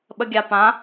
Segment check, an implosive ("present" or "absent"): present